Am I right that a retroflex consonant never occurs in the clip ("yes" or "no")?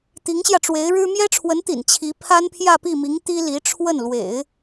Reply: no